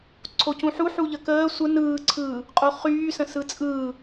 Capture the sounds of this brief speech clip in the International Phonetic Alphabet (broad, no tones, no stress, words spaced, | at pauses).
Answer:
ǀʰocũħu ħuʎəkəː sʷə nɯːǀʰɯː | qʼoχyːsə̃ sɯt͡sʼɯː